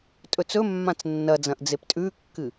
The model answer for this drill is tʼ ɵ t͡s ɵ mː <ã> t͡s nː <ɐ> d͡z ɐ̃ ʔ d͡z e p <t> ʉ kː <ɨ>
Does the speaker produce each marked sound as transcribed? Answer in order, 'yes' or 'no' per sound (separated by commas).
yes, yes, no, yes